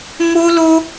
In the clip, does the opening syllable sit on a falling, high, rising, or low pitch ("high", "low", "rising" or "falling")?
high